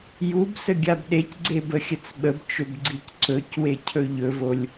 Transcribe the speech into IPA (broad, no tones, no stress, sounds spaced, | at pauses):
j u b s ə ɡʲ a b ɗ e c ɡ͡ǀ e b ə xʲ ə t͡s ɓ ə b t͡ʃ ɵ b ɡ͡ǀ i c ǀ ɵ c w e cʰ ɵ ʎ ɵ v o lʲ